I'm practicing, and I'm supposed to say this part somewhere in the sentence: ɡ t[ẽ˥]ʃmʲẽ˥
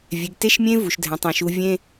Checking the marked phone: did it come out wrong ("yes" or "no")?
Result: yes